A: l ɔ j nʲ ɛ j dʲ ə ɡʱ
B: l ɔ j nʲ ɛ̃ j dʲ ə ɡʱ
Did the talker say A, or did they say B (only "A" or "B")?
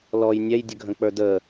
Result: A